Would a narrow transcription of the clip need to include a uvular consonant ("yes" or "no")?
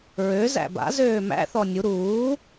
no